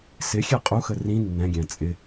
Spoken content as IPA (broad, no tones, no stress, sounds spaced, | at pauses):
s ɪ xʲ ɛ qʼ u x ə r ĩ nː ɛ̃ ɡʲ æ̃ t͡sʼ ɪ